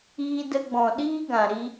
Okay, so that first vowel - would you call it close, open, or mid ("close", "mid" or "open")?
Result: close